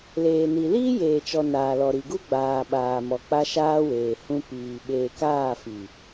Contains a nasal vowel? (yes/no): yes